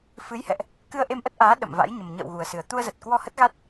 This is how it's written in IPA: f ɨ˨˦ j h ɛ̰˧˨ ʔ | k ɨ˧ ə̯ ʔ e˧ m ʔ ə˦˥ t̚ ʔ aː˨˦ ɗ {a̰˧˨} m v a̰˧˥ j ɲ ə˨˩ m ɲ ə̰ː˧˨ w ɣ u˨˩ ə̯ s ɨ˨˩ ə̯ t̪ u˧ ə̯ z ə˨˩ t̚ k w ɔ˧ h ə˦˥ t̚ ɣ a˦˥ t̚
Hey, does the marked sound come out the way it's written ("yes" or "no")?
no